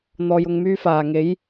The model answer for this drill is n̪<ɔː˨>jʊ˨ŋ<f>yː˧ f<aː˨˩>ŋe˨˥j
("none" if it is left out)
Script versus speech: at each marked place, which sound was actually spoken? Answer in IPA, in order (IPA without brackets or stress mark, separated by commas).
ɔː˨, m, aː˨˩